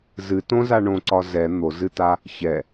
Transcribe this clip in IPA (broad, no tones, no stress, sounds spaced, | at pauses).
z ɨ t õ z a ɳ õ ǀ ɒ z ɛ n̪ o z ɨ t a | ç ɛ